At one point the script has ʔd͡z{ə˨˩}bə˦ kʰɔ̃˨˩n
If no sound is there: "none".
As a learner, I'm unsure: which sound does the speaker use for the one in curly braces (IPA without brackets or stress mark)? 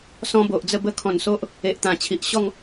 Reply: ə˥˧